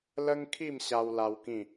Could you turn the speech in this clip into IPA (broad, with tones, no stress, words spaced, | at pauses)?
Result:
lə˦ŋkʰi˥˧m ɕa˧wla˧w kĩ˥˧